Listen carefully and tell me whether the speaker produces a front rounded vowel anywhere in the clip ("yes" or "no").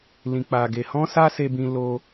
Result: no